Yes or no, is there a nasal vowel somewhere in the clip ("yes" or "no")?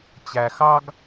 no